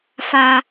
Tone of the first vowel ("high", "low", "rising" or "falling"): high